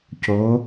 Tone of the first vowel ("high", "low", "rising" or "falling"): rising